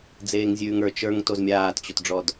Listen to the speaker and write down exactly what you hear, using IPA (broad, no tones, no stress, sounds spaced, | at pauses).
d͡z eː ŋ zʲ ʉː ŋ ə˞ t͡ʃ ə˞ ŋ t o z mʲ aː t t͡ɕ o t ɖ͡ʐ ɔ d